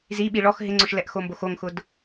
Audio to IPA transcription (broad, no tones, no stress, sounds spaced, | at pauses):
z i ɓ i ɭ ɔ x ɦ ɪ ŋ͡ǀ ʊ ʃ l ɛ ʔ x o m b o x o ŋ x ʊ d